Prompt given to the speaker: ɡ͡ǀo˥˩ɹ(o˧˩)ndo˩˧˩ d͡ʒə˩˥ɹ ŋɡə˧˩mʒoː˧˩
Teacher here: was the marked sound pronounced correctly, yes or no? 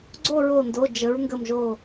yes